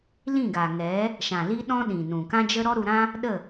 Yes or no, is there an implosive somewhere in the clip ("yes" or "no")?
yes